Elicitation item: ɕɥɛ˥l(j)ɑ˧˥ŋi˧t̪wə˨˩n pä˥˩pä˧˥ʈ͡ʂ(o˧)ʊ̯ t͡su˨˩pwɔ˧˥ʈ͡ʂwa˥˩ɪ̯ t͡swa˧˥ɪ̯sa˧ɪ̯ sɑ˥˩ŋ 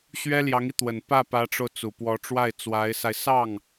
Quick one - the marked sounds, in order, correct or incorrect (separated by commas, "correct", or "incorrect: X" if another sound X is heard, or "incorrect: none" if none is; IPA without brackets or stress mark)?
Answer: correct, correct